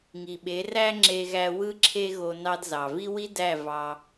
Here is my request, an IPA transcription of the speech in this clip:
ŋ i˨ ɓ e˨˦ r æ˦ ŋ͡ǁ e˧ ɣ æ˧ w ɯ˦ ǁʰ e˦ ɣ o˧ n ɑ˧ d z ɑ˨ v i˦ w i˦ d æ˦˨ v ɑ˧

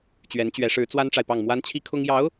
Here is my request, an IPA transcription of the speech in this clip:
t͡ɕ ɥ ɛ˧˥ n t͡ɕ ɥ ɛ˧˥ ʂ ɻ̩˧˥ t͡s w a˥ n ʈ͡ʂ a˨ ɪ̯ p ɑ˥˩ ŋ m w a˥ n t͡ɕʰ i˥ kʰ ʊ˥ ŋ j ɑ˧˥ ʊ̯

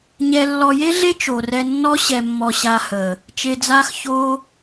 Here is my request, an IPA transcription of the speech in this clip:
ɲ ɛ˧ lː ɔ˧ j e˦ ɮ e˦ t͡ʃ o˨ r ɛ˧ nː ɔ˦ ɕ ɛ˧ mː ɔ˧ ɕ a˧ h əː˨ | t͡ʃ e˧ d͡z aː˦ x ç oː˦

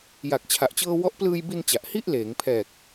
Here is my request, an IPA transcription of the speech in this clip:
j a˨˩ k̚ t͡ɕʰ a˨˩ ʔ t͡ɕ ɤː˧ w ɔ˦˥ ʔ p l ɯː˧ j b i˧ n t͡ɕ a˨˩ ʔ h i˥˩ ʔ l eː˩˦ ŋ pʰ ɛː˨˩ k̚

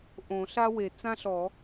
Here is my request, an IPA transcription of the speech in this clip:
ʔ õ˨˩˦ ɬ a˥ w e˨˩˦ t͡s ã˥ ɬ ɔ˨˩˦

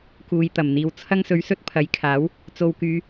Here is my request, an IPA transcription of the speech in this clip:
k uː˨ j t̪ ɐ˨˩ m n̪ iː˨ w t͡sʰ ɐ˥ ŋ s ɵ˧ ɥ s ɵ˥ t̚ pʰ ɐ˨˥ j kʰ aː˨˥ w | t͡s o˧ w k yː˧

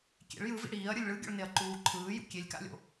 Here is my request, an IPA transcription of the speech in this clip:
kʲ ḛ ɭ j ɯ v ḭ ɽ iː ɐ̯ ɾʲ ɯ lʲ ɭ ɯ ɡʲ o̰ ɭ n e ɐ̯ ǃ uː ǃʰ ɯː j ṵ kʲ e lʲ k a̰ lʲ o̰

